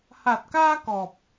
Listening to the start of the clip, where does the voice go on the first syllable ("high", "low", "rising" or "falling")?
low